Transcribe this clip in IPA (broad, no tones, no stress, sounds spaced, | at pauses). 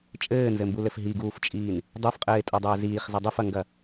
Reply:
t͡ʃʼ ɘː n z ɘ m b u l ɘ f ɦ i ɡ uː f t͡ʃʼ iː n | dˤ u f qʼ ɘː ɪ̯ tʼ o dˤ ɘː z iː χ z ɘ dˤ ɨ f ɐ ŋ ɡ ɐ